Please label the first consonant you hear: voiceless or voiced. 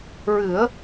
voiced